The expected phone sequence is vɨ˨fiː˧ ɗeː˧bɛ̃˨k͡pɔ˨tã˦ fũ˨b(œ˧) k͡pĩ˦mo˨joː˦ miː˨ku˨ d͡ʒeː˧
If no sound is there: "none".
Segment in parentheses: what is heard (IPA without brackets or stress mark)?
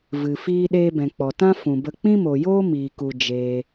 ə˧